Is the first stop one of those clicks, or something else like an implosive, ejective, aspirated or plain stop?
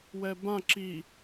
plain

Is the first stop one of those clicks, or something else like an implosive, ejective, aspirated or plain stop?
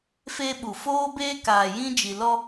implosive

